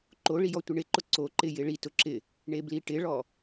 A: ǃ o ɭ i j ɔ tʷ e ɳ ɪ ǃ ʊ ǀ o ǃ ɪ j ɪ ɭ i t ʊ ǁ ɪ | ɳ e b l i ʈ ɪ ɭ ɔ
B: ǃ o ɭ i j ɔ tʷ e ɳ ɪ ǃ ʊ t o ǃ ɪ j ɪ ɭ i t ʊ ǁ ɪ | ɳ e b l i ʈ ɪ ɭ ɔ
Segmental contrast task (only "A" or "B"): A